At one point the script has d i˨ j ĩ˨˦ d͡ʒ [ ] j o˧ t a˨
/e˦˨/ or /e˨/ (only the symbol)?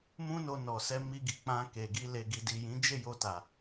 e˦˨